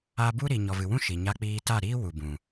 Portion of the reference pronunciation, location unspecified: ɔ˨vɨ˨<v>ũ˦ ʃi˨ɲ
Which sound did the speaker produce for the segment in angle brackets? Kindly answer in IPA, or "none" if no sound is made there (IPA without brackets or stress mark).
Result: w